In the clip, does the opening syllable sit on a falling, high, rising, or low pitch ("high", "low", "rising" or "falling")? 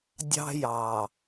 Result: high